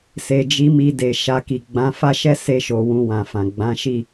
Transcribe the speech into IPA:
s e˨ d͡ʒ i˨˦ m i˧ d e˨ ʃ a˧ k i˨ ɡ͡b ã˨˦ f a˦ ʃ ɛ˦ s e˦ ʃ o˧ w ũ˧ w ã˨ f ã˨ ɡ͡b ã˨˦ ʃ i˦˨

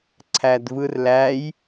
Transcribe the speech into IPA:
ǀʰ æ d v ɯ r l æ j

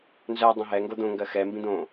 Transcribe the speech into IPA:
n z ɜ dˤ õ ɦ ɛ ŋ ɡ o d̪ õ ŋ ɡ ɜ x ɛ m b ĩ d̪ õ

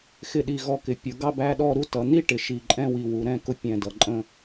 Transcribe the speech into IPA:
x ɪ˧˩ ɗ i˧˩ ɣ ɔ˧˩ k ɪ˩˧ pʲ ʊ˩˧ ɡ ɑ˥˧ b æ˥˧ ɗ ɔ˥˧ ɾ u˥˧ t ʌ˩˧ n̪ i˥˧ ʈ ɪ˩˧ ʃ i˧˩ ǃʼ ɛ̃˥˧ w i˧˩ w u˩˧ ɾ ɛ̃˥˧ k ʊ˥˧ pʲ ɛ̃˧˩ d ʌ˩˧ ǃʼ ə̃˥˧

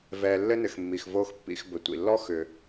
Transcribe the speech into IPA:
v ɛː˨ lː ɘ˥ n ɘ˨ x mː i˩ x v oː˦ x pː ḭ˨ x b ɘ˩ tʷ ḭ˩ lː ɔ˥ x ʏː˨

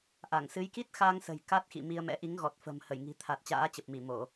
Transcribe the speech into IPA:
ʔ a˧˩ ŋ s ɨ˨˦ j k i˦˥ t̚ x a˧ ŋ s ə̤˨˩ j k a˦˥ t̚ x ḭ˧˨ m i˧ ə̯ m ɛ̰˧˥ ʔ i˨˦ ŋ ɣ ɔ˨˩ t̚ f ə̤˨˩ m h ə˧˩ j ŋ i̤˨˩ t̪ʰ a˨˩ t̚ t͡ɕ a̰ː˧˥ t͡ɕ ə˨˩ p̚ m i˧˩ m o˧˩˨

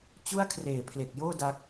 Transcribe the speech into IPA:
t͡ɕ u˥˩ a̯ kʰ r eː˨˩ pʰ l e˨˩ k̚ j oː˥˩ d a˦˥ k̚

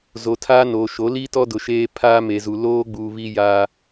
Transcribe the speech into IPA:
z o˨ tʰ aː˦ n oː˨ ʃ o˨˦ l i˦ t ɔ˦ d ʊ˨ ʃ eː˦ pʰ aː˦ m e˨ z u˨ l oː˦ ɡ͡b u˨ β i˦ j a˦

